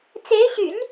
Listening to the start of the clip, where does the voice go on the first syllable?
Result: rising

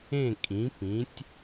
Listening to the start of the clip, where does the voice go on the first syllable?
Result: falling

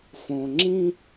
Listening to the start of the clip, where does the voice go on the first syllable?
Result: low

